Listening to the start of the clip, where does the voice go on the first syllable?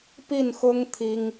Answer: falling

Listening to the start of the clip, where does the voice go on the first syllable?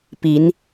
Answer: rising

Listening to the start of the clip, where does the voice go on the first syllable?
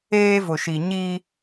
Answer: high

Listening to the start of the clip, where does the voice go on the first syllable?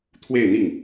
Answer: falling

